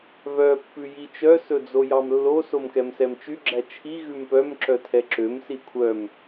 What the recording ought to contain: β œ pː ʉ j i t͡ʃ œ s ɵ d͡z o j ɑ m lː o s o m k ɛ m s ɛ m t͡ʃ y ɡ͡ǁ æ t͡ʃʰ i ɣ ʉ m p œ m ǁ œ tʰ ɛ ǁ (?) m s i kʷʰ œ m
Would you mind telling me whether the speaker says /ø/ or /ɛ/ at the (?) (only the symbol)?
ø